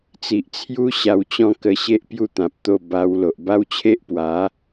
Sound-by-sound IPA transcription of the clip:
t͡s i˨ ʔ t͡sʰ j u˦ ɕ a˧ w t͡ɕ ɔ̃˥˧ k ə˧ ɕ e˦ ʔ p j u˥˧ t̪ ã˨ p̚ t̪ o˥˧ b a˧ w l o˨ ʔ b a˦ w t͡ɕʰ e˦ ʔ p w a˨˦

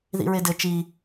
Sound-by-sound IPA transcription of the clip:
ð ḭ ɹ e d ɘ t͡ʃ i

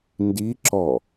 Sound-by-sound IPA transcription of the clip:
n d i ǁ ɔ

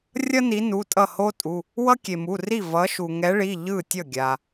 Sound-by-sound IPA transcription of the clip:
rʲ ʌ˥ n i˨˦ n u˩˧˩ tʼ ʌ˥˩ h o˥ tʼ u˩˧˩ | w ʌ˥ kʲ e˩ m u˩˧˩ r i˥˩ v ʌ˨˦ ʃ u˩ ŋ ɛ˨˦ ɭ i˩˧˩ ʎ ɯ˥˩ tʲ ʌ˥˩ ɡʲ a˩

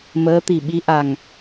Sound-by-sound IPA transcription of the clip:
m əː˧˥ t̪ i˨˩ ɓ i˧˥ ʔ a˨˩ ŋ

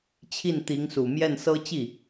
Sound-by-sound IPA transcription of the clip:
t͡ɕʰ i˥˩ n t̪ i˧˥ ŋ s u˨˩ m j ɛ˥˩ n s ɤ˥ t͡ɕ i˥˩

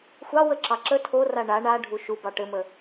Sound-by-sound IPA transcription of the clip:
xʷ ɑ w ə ǁ ɑ ǁ ə tʰ o r a ɳ a ɳ a ɖʱ u ʃ u b ɑ ʈ ɘ m ə

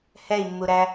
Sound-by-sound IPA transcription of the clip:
h ɛ i̯ mː u ɾ æ

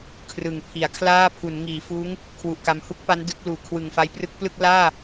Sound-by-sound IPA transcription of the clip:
kʰ r ɯ˨˩ ŋ pʰ i˩˦ a̯ kʰ l aː˥˩ pʰ u˩˦ n ŋ iː˩˦ f uː˦˥ ŋ | kʰ w u˨˩ ʔ k a˧ m h u˦˥ k̚ p a˦˥ n d ɯ˦˥ k̚ l uː˨˩ kʰ w ɯ˨˩ ŋ f a˧ j p r ɯ˦˥ k̚ p l ɯ˥˩ k̚ l aː˥˩

